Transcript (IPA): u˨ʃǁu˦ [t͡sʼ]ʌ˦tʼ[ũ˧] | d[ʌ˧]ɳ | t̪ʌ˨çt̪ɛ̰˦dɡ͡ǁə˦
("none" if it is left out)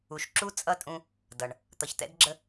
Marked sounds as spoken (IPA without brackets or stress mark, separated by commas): t͡sʼ, ũ˧, ʌ˨